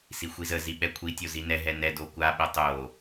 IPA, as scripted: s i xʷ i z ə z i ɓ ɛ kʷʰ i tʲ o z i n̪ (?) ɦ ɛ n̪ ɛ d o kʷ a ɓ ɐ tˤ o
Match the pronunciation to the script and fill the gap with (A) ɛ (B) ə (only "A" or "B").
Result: A